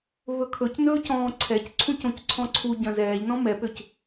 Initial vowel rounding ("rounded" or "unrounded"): rounded